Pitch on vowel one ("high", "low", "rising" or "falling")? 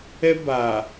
high